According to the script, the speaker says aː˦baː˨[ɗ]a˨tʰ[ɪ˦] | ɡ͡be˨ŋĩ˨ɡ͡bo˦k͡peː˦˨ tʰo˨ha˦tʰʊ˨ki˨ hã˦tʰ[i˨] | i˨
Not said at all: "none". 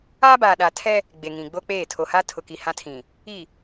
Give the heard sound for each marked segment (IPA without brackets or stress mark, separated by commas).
ɗ, ɛ˦, ĩ˨